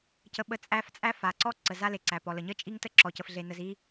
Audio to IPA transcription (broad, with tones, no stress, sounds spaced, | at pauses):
c ə˨ ɓ ə˨˦ t͡sʼ æ˦ f t͡sʼ æ˦ f a˨ ǀ ɔ˦ ǀ ə˨ z a˦ l e˨ ǀ æ˨ p ɔ˨ l ə˨ ɲ ə˦ t͡ʃʼ i˦ ŋ t ə˦ ǁ ɔ˨ c ə˨ f ɮ e˨ n ə˨ z i˦